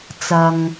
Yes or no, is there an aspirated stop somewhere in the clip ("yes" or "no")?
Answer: no